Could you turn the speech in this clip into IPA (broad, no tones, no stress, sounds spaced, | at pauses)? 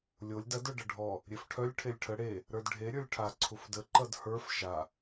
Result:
lʲ o lʲ d ɐ d ə˞ ɖ ɐ ɖʱ ɔ | ɾʲ e f ʈʰ œ lʲ ʈʰ e lʲ ʈʰ ə ɽ e | ɾ ə˞ d ɖʱ e ɾʲ ə˞ lʲ ʈʰ a ǀʰ u f d ə ǃ ʌ d h ə˞ f ʃ a